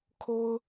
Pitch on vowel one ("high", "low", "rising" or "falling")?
high